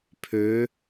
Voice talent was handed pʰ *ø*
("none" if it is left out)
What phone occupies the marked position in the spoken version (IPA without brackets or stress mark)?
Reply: ø